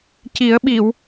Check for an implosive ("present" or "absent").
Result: present